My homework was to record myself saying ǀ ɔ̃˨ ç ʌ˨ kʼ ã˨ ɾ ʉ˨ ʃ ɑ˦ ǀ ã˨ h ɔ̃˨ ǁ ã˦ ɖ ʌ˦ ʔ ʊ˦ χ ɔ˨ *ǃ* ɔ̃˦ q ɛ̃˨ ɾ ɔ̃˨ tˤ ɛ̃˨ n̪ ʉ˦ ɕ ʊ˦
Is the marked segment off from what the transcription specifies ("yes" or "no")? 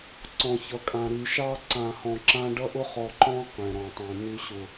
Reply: no